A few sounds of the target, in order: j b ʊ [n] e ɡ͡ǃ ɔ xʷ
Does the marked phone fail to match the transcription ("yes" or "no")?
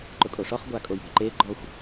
yes